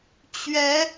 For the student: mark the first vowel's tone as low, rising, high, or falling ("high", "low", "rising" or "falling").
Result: rising